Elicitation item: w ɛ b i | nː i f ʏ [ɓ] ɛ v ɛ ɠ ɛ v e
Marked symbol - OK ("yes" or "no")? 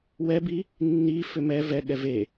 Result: no